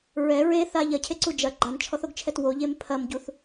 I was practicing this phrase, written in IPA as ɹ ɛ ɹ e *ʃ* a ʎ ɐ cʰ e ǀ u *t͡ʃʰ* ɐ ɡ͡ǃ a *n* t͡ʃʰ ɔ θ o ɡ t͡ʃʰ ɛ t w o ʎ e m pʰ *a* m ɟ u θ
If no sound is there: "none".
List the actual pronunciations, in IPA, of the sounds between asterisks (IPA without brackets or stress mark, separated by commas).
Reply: θ, d͡ʒ, n, ɐ